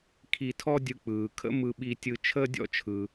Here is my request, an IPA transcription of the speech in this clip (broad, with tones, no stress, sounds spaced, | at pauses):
kʰ i˧ tʰ ɔ˥ dʲ ɯ˧ k͡p ɯː˩ kʰ ə̰˥ m ɯ˧ ɓ i˧ tʲ ɯ˧ t͡ʃʰ əː˥ dʲ ɔ̰˥ t͡ʃʰ ɯ˩